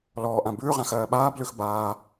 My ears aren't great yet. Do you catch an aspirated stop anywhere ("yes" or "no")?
no